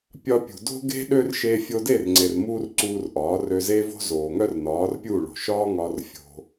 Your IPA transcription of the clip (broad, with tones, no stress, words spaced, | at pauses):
pʲɒ˧pʲṳ˨ do̤˦ɡe̤˦ ɗø˦r ʃe˧fʲo˧de˦˨r ŋ͡ǀe˨rmuː˦rǀuː˧r ʔɒː˨˦ rø˧ ze˦vo̤˦ zoː˨ ŋœ˦rnɒː˨˦rpʲu˦˨ɭo̤˨ ʃɒː˦ŋɒː˧r fʲo̤˧